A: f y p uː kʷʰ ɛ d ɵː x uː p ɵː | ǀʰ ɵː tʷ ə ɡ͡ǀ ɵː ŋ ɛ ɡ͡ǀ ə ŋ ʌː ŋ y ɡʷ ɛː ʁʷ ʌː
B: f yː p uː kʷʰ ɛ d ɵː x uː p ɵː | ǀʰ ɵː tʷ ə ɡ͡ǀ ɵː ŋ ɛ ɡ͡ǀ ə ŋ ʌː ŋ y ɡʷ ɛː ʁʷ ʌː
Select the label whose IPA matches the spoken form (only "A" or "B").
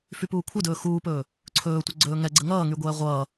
A